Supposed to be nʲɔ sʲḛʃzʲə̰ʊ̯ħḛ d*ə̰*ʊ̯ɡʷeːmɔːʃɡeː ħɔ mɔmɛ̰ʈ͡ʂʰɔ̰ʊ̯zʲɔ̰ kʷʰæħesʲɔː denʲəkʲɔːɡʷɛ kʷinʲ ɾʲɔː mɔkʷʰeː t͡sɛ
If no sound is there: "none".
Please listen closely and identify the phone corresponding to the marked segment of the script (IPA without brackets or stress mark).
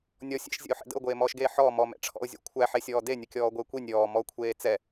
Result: ə̰